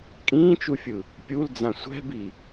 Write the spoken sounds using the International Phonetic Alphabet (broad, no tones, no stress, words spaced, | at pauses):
kʼĩːt͡ʃufʲɯ | pʲuld͡zã sʷɛ̤bi